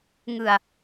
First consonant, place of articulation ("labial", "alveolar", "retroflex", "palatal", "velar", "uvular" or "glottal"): velar